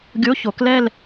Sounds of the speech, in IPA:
ɡʲ o˧˥˧ ç o˨˩˦ k l ɛ˥˧ l

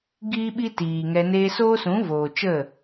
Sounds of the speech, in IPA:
ɡ iː˦ ɓ i˦ t iː˨ ŋ ɛ˧ n eː˧ s oː˦ s ũ˨˦ v oː˨ t͡ʃ ə˦˨

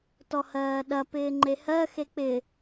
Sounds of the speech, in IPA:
t ɔ h ɜː ɗ ɐ p ɪː ŋ͡ǃ e h ɜ x e k͡p ɪ

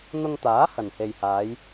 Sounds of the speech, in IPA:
n̪ ʊ˧ ŋ t̪ aː˨˥ h ɐ˨˩ n h e˨ j h aː˨˧ j

